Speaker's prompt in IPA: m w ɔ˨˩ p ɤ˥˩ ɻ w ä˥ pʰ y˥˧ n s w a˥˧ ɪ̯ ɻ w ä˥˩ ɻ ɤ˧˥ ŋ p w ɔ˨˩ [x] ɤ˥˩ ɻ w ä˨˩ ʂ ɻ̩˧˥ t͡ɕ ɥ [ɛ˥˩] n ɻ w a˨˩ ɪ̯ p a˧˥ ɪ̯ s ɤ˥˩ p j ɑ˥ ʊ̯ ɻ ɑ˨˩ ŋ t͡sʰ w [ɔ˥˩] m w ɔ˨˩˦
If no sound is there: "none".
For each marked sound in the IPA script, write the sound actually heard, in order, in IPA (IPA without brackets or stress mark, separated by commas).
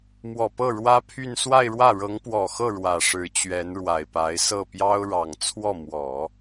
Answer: x, ɛ˧˥, ɔ˥˩